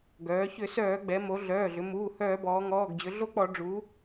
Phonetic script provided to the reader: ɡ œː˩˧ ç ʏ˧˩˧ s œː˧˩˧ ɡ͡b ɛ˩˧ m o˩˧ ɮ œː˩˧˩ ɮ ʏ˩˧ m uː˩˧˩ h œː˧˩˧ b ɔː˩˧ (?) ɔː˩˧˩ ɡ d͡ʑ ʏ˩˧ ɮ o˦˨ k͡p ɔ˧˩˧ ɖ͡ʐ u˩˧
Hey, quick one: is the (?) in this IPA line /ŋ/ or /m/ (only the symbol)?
ŋ